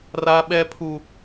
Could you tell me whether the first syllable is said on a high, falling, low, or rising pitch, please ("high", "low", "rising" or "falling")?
high